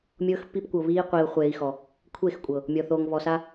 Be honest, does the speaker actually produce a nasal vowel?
no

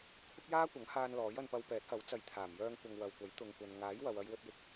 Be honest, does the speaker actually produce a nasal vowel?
no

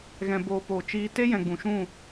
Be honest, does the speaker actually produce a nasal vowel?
yes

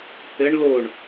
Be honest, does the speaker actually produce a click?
no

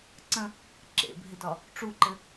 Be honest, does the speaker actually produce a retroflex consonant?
yes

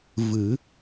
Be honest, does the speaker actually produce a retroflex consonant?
no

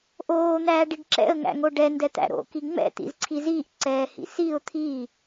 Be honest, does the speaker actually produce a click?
yes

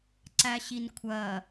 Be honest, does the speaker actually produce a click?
yes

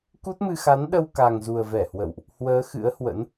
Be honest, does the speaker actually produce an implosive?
yes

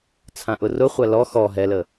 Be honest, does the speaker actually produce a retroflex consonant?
no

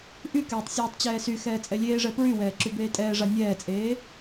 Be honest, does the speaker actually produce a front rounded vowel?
yes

